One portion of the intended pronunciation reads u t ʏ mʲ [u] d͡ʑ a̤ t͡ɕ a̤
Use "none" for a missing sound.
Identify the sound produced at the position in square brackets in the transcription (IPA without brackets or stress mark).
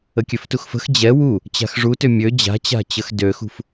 ø